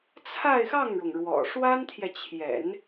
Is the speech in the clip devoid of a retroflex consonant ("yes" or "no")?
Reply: no